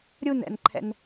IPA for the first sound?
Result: ɾʲ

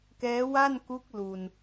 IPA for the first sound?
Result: k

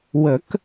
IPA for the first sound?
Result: w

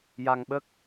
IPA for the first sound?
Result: j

